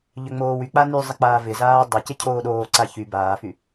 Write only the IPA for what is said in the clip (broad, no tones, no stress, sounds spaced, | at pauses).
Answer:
ʎ ʏ ŋ͡m oː w y k͡p a n y zˤ ɪ k͡p aː v ɪ z aː dˤ ʏ c ɪ cʰ oː ɗ oː ǀ a ç y b aː f y